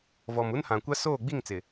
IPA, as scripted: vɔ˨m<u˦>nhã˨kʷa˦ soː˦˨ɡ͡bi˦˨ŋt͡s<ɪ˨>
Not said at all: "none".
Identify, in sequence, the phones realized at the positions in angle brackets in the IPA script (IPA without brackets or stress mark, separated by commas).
u˦, ɪ˨